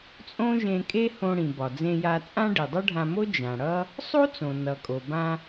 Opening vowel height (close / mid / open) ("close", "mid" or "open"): mid